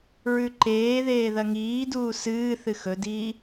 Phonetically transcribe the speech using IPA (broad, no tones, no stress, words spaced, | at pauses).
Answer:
ɹʉǃeːðeː ðɐŋiːduː sɨː θɨxɵdiː